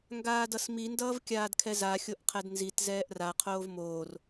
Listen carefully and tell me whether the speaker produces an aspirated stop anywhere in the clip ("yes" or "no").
yes